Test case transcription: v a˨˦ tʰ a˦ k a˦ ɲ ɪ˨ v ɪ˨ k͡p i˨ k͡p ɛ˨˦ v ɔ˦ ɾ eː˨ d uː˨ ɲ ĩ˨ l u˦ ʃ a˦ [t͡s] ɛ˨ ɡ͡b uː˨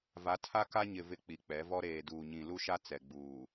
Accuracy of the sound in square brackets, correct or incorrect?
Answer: correct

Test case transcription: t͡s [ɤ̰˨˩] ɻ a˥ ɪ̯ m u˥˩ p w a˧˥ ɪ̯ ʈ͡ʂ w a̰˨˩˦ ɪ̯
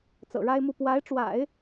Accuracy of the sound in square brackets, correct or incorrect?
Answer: correct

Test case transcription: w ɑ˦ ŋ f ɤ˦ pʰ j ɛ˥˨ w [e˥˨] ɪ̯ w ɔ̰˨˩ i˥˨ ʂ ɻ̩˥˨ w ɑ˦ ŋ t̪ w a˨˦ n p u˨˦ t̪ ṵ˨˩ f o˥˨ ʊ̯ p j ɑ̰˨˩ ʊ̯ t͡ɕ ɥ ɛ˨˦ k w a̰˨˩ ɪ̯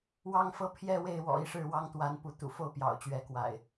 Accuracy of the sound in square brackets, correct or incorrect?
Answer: correct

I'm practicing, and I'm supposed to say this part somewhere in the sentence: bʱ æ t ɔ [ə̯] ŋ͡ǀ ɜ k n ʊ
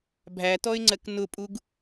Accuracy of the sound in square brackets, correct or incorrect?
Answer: incorrect: ɪ̯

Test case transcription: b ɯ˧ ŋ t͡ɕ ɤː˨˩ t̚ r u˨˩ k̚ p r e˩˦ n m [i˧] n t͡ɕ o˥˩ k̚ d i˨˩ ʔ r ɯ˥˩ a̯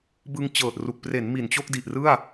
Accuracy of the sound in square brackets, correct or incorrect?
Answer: incorrect: i˨˩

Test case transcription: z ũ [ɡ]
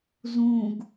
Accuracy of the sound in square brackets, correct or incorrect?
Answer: correct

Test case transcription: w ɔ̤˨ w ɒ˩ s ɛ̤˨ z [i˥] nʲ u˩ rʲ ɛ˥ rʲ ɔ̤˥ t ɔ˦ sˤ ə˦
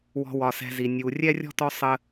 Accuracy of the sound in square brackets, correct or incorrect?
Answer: incorrect: i˩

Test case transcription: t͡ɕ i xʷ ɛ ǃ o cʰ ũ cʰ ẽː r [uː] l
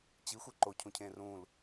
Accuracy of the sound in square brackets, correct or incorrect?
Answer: incorrect: ũː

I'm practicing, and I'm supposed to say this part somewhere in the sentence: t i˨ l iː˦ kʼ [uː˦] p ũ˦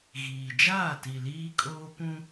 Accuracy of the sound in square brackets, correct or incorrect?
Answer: incorrect: oː˦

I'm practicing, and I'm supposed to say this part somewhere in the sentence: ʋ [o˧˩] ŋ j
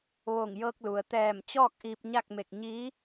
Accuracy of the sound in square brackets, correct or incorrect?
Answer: correct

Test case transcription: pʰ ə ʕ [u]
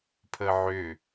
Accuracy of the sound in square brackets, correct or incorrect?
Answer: incorrect: ʏ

